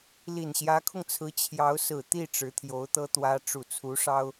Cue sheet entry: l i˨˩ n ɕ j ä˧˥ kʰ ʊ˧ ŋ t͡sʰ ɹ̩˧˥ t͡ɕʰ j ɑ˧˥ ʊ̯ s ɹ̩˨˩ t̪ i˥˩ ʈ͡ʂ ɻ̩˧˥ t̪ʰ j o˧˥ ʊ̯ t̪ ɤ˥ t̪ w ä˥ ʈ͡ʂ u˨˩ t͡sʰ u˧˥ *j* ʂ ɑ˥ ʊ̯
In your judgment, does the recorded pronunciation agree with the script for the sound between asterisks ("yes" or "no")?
no